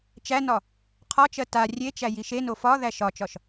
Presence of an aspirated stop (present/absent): present